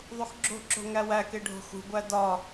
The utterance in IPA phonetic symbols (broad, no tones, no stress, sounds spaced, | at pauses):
ðˤ u x ɡ͡ǁ o̤ ǁ o̤ ŋ æ w æ k e ɖʱ o̤ x ṳ ɡʷ æ d ɒ